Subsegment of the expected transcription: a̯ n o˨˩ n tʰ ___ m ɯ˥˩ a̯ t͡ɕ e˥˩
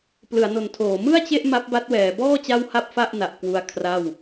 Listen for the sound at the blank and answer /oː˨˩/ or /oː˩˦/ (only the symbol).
oː˩˦